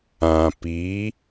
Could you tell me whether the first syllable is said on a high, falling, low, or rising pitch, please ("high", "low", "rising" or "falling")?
low